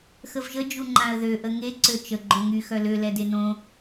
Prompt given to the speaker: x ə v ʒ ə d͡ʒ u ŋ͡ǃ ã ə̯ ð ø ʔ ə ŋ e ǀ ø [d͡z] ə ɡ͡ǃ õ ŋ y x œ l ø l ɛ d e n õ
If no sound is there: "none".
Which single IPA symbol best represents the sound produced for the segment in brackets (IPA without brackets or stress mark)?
t͡ʃ